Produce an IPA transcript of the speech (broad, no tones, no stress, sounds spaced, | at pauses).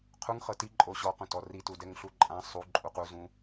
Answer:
qʰ u ŋ χ ɤ t i ǃʼ o ɕ ɔ q ũ t ɔ r i t u d ɛ ŋ ɬ u ǃʼ ã sˤ u ǃʼ u q u z ũ